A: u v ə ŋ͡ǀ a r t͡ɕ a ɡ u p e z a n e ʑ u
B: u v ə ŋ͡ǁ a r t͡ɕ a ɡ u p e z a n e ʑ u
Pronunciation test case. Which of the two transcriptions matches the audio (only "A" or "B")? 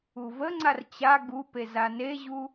A